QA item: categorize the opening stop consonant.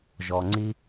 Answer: click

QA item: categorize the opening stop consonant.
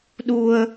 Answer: implosive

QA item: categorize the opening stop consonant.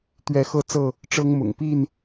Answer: plain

